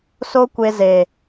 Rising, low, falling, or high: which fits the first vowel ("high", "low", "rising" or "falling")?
high